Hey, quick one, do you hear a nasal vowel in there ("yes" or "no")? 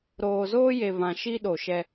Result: yes